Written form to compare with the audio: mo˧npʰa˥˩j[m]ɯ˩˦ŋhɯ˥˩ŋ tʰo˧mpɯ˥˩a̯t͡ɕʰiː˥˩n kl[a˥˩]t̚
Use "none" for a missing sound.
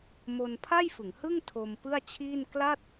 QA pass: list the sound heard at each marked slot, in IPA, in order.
f, a˥˩

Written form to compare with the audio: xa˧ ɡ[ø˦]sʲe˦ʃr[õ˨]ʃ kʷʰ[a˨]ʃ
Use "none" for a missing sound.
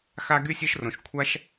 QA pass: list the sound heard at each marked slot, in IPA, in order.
y˦, õ˨, a˦

